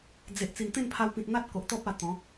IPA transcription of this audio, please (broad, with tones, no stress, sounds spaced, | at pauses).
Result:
d͡z e˨ ʔ t͡s i˨˩ n t̪ ẽ˥˧ n pʰ a˧ w p ĩ˨ t̚ n̪ a˦ t̚ k o˨ ʔ t̪ ɔ˦ p̚ a˧ t̪ ɔ̃˨˦